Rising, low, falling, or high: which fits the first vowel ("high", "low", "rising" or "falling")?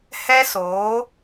high